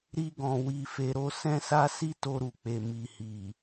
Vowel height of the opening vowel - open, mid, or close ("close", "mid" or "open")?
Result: close